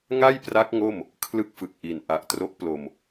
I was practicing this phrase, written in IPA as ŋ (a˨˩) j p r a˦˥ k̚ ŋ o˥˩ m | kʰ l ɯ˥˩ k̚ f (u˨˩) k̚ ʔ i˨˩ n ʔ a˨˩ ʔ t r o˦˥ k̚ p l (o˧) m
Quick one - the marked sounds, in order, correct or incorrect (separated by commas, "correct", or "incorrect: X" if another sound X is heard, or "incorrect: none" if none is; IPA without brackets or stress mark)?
incorrect: a˥˩, incorrect: ɯ˨˩, correct